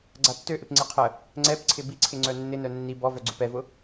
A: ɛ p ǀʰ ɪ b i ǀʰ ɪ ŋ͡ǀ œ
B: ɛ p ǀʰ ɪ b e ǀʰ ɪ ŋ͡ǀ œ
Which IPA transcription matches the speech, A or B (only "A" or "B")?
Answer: A